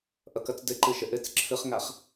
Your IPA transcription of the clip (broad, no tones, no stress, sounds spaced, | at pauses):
ʔ ʌ k ʌ t͡s d ɘ ǃ ɯ ʃ ə ʔ ɘ t͡s ǁʰ ɯ χ ŋ a χ